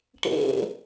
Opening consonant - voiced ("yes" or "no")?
no